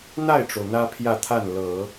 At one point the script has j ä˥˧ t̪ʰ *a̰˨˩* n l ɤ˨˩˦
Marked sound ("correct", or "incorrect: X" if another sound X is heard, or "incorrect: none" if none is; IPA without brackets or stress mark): incorrect: a˥˩